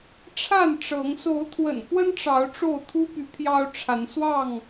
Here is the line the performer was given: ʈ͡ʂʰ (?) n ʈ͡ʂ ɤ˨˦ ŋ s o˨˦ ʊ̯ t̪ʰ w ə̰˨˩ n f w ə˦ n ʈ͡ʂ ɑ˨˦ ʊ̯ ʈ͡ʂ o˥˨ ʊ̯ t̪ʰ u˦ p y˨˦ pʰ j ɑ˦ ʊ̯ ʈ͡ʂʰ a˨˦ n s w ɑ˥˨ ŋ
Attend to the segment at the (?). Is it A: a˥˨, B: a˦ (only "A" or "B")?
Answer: A